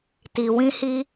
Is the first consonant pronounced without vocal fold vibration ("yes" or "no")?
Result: yes